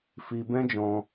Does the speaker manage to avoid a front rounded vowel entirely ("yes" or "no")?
yes